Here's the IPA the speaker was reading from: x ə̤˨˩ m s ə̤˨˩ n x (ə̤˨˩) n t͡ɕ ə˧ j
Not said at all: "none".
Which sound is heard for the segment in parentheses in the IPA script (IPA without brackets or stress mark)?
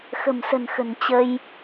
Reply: ə̤˨˩